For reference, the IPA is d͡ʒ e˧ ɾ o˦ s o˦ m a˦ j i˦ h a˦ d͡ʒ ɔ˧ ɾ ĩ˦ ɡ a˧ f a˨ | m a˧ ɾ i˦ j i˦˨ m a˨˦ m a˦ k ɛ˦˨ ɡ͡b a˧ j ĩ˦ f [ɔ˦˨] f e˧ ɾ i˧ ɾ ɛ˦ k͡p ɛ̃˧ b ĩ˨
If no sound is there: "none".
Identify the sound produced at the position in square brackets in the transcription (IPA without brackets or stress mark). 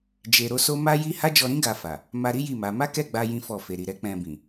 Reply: ɔ˦˨